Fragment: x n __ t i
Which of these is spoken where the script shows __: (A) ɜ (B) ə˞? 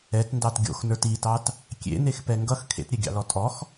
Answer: B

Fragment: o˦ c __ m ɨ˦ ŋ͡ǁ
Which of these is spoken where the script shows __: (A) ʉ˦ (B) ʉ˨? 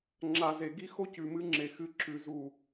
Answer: B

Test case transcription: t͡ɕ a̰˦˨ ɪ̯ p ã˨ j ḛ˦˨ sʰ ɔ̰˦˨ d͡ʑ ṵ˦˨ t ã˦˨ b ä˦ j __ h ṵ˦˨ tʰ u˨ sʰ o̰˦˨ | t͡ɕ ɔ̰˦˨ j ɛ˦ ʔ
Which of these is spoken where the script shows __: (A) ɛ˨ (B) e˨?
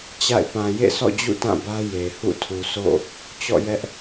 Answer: B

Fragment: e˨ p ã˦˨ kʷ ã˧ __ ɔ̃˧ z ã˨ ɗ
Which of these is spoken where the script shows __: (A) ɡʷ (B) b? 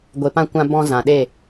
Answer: B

